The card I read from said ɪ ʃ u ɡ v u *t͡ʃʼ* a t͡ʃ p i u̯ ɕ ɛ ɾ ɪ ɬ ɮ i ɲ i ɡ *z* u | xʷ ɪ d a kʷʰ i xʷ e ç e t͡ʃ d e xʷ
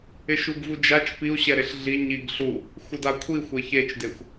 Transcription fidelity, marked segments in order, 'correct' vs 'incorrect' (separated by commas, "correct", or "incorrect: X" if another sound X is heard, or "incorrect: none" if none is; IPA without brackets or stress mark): incorrect: d͡ʒ, incorrect: ɬ